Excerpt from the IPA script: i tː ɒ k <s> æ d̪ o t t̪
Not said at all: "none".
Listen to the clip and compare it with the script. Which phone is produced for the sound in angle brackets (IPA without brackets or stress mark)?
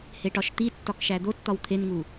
ʃ